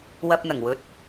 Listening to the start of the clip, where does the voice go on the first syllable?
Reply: low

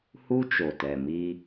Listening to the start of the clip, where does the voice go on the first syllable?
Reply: high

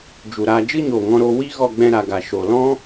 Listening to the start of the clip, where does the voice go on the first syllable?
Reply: low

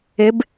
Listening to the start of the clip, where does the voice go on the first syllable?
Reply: rising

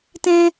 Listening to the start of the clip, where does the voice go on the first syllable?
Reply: high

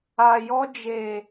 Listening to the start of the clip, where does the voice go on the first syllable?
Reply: low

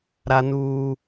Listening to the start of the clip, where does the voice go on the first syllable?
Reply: high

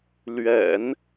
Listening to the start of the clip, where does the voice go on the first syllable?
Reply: low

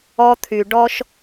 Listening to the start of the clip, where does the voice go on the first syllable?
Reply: high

